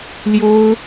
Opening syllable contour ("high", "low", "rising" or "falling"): high